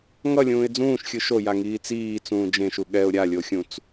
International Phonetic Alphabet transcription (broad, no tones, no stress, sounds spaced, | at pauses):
ŋ ʌ lʲ ũː ɪ̯ d͡z ũː ʃ xʲ ɯ ʃ o j a ŋ iː t͡s iː t͡s ũː d͡ʒ ẽ ʃ u ɠ ɛ ʊ̯ ɾʲ a lʲ o xʲ ũ t͡s